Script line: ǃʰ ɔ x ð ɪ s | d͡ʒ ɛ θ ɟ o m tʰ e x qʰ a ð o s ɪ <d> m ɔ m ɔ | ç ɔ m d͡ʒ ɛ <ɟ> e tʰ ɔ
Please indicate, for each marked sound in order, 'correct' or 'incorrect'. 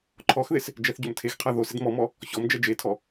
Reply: correct, incorrect

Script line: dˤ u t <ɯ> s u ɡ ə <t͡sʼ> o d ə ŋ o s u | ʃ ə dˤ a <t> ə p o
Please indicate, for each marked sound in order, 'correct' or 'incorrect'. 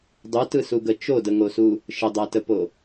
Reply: correct, incorrect, correct

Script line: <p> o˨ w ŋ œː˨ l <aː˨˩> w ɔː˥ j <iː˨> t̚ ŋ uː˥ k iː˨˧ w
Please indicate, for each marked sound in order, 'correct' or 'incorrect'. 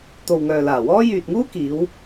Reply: incorrect, correct, incorrect

